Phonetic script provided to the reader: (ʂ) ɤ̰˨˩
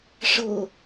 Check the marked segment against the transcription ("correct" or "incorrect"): correct